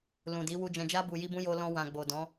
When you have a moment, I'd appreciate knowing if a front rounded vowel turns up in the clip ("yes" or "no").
no